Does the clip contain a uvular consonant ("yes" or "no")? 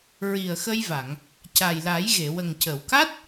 no